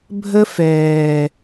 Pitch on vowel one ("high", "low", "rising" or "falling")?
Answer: high